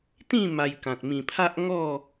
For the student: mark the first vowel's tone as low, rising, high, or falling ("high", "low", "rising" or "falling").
falling